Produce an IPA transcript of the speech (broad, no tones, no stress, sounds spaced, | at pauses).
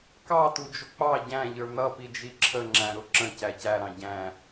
k ɑ t u d͡ʒ ʊ k͡p ɑ ɟ æ̃ ʎ ə˞ n̪ ʌ p i d͡ʒ i ǁʰ ə ŋ͡ǁ æ̃ ɾ ʊ ǁ ə̃ c æ c æ ɾ ɑ̃ ɟ æ̃